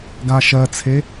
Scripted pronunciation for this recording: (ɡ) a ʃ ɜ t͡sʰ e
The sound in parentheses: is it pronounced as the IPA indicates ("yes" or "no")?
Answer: yes